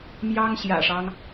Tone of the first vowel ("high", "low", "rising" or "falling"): high